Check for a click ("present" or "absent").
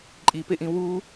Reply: present